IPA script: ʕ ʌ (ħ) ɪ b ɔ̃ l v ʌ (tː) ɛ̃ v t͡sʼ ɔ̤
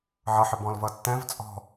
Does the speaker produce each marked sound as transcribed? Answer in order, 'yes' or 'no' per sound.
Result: yes, yes

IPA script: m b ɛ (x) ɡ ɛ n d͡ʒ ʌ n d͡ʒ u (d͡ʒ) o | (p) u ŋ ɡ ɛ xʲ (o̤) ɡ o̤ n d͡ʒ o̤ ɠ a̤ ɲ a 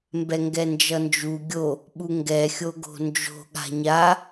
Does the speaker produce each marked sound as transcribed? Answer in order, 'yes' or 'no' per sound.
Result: no, no, no, no

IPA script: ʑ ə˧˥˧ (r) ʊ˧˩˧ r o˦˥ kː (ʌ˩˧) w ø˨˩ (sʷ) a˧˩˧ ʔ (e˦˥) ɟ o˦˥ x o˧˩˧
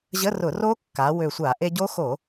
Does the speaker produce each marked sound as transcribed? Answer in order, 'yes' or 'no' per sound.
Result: yes, no, yes, no

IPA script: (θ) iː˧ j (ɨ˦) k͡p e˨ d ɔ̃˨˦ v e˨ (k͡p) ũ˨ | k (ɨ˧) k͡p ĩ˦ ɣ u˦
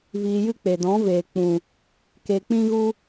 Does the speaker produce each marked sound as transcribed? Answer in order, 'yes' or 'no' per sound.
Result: no, yes, yes, no

